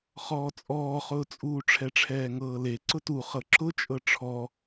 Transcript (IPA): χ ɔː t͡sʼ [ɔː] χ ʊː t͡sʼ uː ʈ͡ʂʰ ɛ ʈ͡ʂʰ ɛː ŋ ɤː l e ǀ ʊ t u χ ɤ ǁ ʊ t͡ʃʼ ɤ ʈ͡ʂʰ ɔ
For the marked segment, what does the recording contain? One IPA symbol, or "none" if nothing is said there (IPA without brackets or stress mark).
ɔː